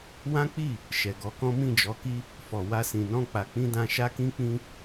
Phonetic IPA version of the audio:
w ã˦ k͡p i˦˨ | ʃ ɛ˨ ɡ ɔ˨˦ k ɔ̃˦ m ĩ˦˨ d͡ʒ ɔ˨˦ k i˦ | f ɔ˨ w a˧ s ĩ˨ n ɔ̃˧ k͡p a˨ k͡p ĩ˧ d ã˧ ʃ a˦ k ĩ˦ k͡p ĩ˦

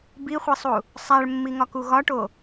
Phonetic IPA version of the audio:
b i χʷ i sˤ u | sˤ æ ɭ mː i ŋ ɒ k u ɣ ɒ ʈ o

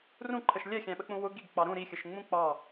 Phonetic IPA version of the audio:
r ũ ǃʰ ə ʃ lʲ ɛ xʲ æ̃ ɓ ə k͡p ũ w ʊ ɡ i ɡ k͡p ɑ ɾ ũ ɾ i xʲ ə ʃ ŋ͡m ũ k͡p ɑ

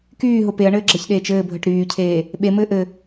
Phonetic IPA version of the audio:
k yː ɦ ʊ p e ɐ̯ ɳ ɘː ɡ͡ǁ ə ç ɗ eː t͡ʃ ɘː bʱ ə ʈ ɾ yː cʰ eː | ɓ e m ɘː ʔ ɘ

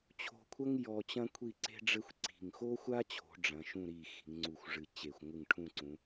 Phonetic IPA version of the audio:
t͡ɕʰ o̤˧ kʷʰ ɐ˥ ŋ j ɔ˧ t͡ɕ ɐ̃˥ kʷʰ i˥˧ ǀ e̤˥ ɖ͡ʐ ɘ˥ xʷ ǀ i̤˧˩ ŋ x o˥ xʷ a˥ t͡ɕʰ o̤˩˧ ɖ͡ʐ ɐ̃˩˧ ʃ ũ˥˧ ɾ i˧˩ x i̤˩˧ ŋ ŋ͡ǀ u˧˩ xʷ ʐ ɨ˧˩ t͡ɕ e˧˩ xʷ ŋʷ ɨ˧˩ ŋ ʈʰ ũ˥˧ ǀ ũ˩˧

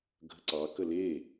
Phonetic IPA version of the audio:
ɡʱ ə ǀ ɑ k ə l e

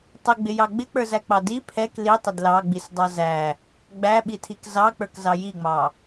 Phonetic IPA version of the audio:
tˤ ɪ ɡ͡b ɪ j ɑ ɡ͡b ɪ k͡p ə˞ z æ k͡p ɑ d i pʰ ɛ k l i tˤ ɪ d l ɑ ɡ͡b i s dˤ ɑ z æ | ɡ͡b æ ɓ i tʰ i k z ɑ k͡p ə˞ k z ɑ j i ŋ͡m ɑ

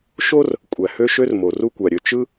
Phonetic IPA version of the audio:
ʃ o˥ r | kʷʼ æ˩ h ø˥ ʃ ø˥ r m o˩ r u˥ kʷ æ˩ ɾʲ ø˩ t͡ʃ ɯ˥

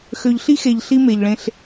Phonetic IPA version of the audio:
x ø˨ ʎ ɬ i˥ x e˨ ʎ ɬ i˦ m e˩ ʎ ɭ ẽ˨ ɬ

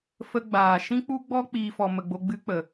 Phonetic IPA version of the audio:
f ə˧ ɡ͡b aː˨ ʃ ĩ˦ k͡p u˦ ɡ͡b ɔ˦ k͡p iː˦ f ɔ˧ m ə˧ ɡ͡b o˦ ɡ͡b ɨ˦ k͡p ə˨

